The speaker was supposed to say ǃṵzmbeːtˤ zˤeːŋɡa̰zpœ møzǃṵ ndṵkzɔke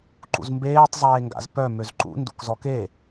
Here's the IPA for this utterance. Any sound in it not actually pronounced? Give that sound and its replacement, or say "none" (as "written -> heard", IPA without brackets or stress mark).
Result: none